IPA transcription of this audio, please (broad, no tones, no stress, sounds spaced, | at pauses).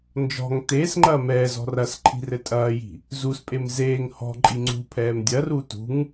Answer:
n d͡ʒ ɔ̤ ŋ t eː s ŋ͡ǃ ɐː m ɛː z ɔ̤ r ɐ s ǃʰ i̤ r ɘ tʼ ɐː j i̤ | z u s pʼ e m z eː ŋ h ɔ̤ ǃʼ i ŋ͡ǀ ṳ pʰ ɛː m dʲ ɐ r u t ṳ ŋ